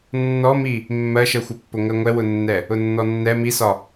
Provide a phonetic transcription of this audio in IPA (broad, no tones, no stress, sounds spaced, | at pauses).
nː ɔ m i | mː ɜ ʃ ɜ xʷ ʌ pː ʊ ŋ ɜ ŋʷ ɛ w ʊ nː ɛ | ʊ nː ɔ nː ɛ m i s ɒ